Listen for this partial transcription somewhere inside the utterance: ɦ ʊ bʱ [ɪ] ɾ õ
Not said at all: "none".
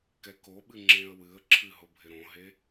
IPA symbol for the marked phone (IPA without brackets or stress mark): ɪ